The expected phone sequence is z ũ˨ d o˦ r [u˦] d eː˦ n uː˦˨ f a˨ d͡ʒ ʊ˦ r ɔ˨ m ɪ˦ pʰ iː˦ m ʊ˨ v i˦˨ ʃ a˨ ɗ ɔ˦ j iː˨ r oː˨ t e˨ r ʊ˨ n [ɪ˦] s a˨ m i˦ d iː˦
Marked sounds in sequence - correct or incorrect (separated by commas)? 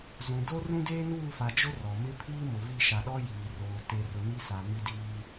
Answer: incorrect, incorrect